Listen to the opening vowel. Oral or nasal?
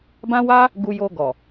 nasal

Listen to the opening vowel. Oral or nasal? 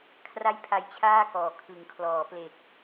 oral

